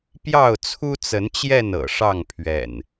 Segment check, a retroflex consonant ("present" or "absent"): present